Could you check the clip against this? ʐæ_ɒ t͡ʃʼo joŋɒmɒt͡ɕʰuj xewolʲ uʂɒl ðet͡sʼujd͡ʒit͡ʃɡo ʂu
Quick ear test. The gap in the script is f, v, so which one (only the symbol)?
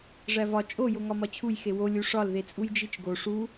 v